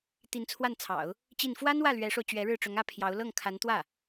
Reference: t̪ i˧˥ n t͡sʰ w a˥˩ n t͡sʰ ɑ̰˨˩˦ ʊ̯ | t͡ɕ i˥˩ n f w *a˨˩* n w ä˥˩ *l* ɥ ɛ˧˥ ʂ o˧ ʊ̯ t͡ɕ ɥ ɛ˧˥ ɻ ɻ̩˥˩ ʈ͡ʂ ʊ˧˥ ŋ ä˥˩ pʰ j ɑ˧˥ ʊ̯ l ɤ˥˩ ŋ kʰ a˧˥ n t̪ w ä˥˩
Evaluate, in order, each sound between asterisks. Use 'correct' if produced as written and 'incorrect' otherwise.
incorrect: a˥, correct

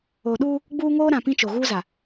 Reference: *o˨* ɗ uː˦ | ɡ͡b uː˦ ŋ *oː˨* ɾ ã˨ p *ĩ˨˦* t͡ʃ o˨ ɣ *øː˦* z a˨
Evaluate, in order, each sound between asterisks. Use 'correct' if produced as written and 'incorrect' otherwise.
correct, incorrect: oː˦, incorrect: ĩ˦, incorrect: uː˦

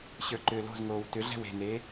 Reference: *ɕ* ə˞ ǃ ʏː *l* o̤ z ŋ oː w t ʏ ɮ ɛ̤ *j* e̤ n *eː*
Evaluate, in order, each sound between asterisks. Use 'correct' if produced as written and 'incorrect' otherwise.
correct, correct, incorrect: w, correct

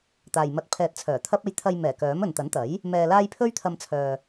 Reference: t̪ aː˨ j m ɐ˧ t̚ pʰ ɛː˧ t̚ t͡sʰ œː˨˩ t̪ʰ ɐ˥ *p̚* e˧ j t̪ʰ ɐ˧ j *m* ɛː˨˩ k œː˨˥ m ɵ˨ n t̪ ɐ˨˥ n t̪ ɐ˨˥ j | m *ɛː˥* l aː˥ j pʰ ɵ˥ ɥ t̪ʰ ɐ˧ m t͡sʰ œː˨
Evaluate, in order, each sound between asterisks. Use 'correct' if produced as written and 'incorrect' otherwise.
correct, correct, incorrect: ɛː˧

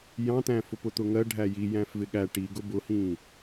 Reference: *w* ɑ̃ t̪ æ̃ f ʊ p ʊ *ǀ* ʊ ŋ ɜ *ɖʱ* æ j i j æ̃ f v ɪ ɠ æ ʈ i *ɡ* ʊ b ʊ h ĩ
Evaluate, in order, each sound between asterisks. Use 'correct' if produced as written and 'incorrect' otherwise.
incorrect: j, incorrect: t̪, correct, correct

